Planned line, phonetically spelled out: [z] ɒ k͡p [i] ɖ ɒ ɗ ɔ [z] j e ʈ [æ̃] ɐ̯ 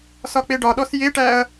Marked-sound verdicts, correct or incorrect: incorrect, incorrect, incorrect, incorrect

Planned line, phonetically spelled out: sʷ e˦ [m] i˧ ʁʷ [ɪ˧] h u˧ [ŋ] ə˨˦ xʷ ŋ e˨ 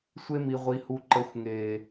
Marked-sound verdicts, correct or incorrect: correct, incorrect, incorrect

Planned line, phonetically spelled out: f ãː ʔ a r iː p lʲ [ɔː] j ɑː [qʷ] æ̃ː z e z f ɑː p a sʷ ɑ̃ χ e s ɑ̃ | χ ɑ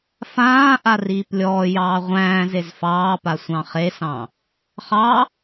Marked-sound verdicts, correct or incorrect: correct, incorrect

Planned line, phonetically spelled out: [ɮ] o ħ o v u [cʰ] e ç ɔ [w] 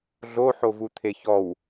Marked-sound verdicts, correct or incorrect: correct, incorrect, correct

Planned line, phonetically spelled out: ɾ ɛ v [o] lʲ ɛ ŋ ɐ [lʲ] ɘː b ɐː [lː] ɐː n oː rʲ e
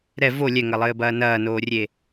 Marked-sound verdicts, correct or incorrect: correct, incorrect, incorrect

